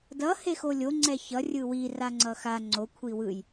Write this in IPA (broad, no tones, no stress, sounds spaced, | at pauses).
d ʌ h e x o lʲ o ŋ͡ǀ ɛ ç ʌ rʲ ɯ w i r a ŋ͡ǀ ʌ x a ŋ͡ǀ o kʷʰ i w ɯ j